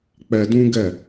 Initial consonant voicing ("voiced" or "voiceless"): voiceless